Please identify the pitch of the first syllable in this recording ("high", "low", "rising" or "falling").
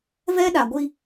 high